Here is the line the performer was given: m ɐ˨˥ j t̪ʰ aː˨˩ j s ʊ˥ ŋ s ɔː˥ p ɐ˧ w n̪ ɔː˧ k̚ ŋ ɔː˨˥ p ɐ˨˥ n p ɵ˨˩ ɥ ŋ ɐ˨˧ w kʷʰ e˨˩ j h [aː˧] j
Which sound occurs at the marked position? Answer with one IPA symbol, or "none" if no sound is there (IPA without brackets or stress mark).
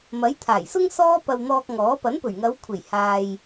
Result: aː˧